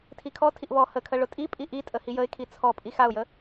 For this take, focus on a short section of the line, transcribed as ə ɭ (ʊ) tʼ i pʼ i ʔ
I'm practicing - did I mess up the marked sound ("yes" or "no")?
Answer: no